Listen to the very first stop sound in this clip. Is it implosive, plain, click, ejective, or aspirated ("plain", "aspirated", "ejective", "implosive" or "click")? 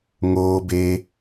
plain